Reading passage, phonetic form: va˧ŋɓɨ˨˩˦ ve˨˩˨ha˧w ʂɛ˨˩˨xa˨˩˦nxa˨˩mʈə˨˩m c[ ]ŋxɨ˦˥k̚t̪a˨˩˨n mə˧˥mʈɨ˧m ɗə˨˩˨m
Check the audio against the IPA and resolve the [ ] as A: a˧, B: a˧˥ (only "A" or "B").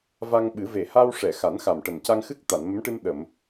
A